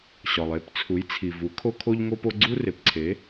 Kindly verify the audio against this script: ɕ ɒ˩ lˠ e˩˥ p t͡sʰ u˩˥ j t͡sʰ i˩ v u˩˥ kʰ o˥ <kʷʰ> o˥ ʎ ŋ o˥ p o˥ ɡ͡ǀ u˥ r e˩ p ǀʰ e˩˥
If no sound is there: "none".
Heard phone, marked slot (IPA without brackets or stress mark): kʰ